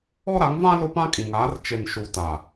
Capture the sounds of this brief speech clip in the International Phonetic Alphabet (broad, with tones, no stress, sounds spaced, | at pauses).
ɔ˦ ɾ a˨˦ ŋ v ã˦ l ʊ˦ p ã˦ kʼ ĩ˨ ŋ aː˨˦ r t͡ʃ e˨ n ʃ u˨ t a˨